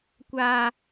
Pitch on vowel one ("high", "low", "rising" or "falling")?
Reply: high